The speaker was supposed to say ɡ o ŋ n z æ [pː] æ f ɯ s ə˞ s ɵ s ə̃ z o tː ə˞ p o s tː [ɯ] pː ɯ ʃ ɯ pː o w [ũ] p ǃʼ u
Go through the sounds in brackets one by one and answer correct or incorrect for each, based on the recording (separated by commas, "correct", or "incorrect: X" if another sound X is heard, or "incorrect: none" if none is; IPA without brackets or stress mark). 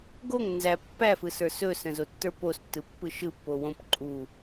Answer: correct, correct, incorrect: õ